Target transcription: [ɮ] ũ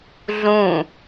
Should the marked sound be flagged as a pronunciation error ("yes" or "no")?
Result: no